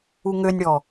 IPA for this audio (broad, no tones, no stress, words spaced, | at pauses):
uŋønʲɽɔ